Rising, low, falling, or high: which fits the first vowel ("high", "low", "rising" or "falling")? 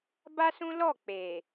high